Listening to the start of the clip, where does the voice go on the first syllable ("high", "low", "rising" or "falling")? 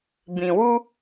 low